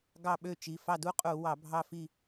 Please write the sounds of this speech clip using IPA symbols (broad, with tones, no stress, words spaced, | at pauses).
ɡɑ˦˨ɓø˦˨t͡ʃi˩˧˩ fɑ˦˨du˦qʼu˧˩˧wɑ˧˩˧ bʱɑ˦˨fi˦˨